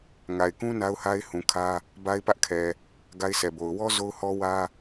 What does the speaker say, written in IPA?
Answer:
ŋa˨ɪ̯ kũ˦ na˦ʊ̯ha˦ɪ̯hũ˨ kʰä˦ | ba˦ɪ̯pä˦ʔkʰɛ˨ | ɡa˦ɪ̯sʰɛ˨bo˨ʊ̯ wɔ˦ zo˦ʊ̯hɔ˦ wä˦

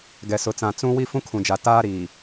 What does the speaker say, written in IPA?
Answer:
ɡɛ˨sʊ˨t͡sã˨ t͡sũ˦ wi˦fũ˦kʰũ˨d͡ʒa˨ taː˦ɾiː˨

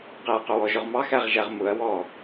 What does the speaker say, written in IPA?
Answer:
qɪɐ̯qʊwɔʒʊʁ mɑxæʁʒæʁ mʊɐ̯ wɔ

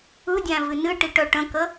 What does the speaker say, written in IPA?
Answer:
ɯdʲæ̃ vɨnɨʈiʈ œʈə̃kə

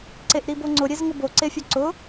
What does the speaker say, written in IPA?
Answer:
ǀeʔɾiboŋ͡ǀʊ ɾʲezŋʊbo ǀefʲoǀʊ

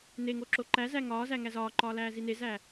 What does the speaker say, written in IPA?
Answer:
neŋo ǁoǃæzæ ŋɒːzæ ŋæzɒːǃɒː læːzinezæ

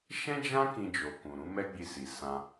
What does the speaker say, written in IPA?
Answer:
ʃɛ̃˦d͡ʒã˦ kĩ˧d͡ʒo˨kũ˨ ɾũ˨˦mɛ˦ɡ͡bi˧ si˨ sã˧

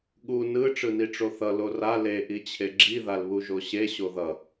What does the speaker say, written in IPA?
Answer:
ɠu nɯ ʈ͡ʂɯniʈ͡ʂoθʌ lora le ʔit͡ɕʰeɡ͡ǁi ðalβuʒoɕe ɕoðʌ

